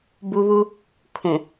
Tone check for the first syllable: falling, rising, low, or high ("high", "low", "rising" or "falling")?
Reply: high